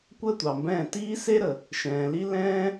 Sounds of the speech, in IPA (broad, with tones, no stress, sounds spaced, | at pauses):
kʷ əː˦ tʷ ɑ˨ m b ɛ̃ː˦˨ t iː˦ s e˦ ɾ ə˨ | ʃ ɛ̃ː˨ l i˦ l ɛ̃ː˦